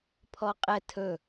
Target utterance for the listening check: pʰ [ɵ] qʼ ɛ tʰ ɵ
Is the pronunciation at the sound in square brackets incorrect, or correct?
incorrect: ɔ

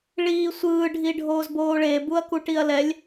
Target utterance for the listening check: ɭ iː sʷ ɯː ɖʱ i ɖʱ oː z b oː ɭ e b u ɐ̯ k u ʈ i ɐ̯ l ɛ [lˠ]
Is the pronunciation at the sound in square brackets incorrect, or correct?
incorrect: lʲ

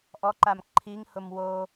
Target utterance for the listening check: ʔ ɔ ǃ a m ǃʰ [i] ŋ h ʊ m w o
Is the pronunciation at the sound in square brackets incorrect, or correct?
correct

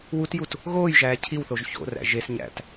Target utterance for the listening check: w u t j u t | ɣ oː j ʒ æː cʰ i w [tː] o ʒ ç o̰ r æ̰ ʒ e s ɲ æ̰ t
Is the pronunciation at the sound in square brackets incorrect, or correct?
incorrect: θ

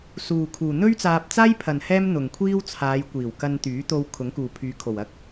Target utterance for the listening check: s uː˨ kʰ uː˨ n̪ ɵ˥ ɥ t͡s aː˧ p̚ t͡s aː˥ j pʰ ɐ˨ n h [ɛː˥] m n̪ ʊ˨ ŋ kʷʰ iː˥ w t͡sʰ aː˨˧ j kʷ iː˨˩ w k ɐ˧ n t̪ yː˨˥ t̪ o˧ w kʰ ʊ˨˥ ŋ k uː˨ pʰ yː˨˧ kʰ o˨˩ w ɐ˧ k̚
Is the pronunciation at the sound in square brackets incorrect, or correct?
correct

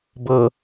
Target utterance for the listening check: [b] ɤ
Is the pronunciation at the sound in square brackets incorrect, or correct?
correct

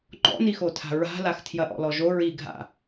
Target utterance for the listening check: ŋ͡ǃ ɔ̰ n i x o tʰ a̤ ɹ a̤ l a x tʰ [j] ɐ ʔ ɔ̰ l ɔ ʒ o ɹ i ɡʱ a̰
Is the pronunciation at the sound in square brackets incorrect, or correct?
correct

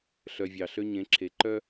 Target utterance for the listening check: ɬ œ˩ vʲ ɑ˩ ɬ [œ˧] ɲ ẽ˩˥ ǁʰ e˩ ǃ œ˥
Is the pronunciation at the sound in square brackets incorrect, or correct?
incorrect: ø˧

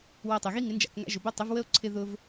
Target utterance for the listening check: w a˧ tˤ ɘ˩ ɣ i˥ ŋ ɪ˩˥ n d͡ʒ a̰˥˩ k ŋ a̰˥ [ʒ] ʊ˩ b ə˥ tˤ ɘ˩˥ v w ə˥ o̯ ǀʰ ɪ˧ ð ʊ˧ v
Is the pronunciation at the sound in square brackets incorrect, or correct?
correct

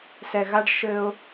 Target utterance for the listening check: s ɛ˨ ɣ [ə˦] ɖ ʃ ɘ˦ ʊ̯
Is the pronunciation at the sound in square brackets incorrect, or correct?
incorrect: a˦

